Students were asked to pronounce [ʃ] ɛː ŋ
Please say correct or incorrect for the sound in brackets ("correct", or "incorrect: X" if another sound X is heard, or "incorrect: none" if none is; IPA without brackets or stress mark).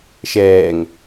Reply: correct